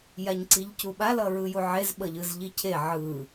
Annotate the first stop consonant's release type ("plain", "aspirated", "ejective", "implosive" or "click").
click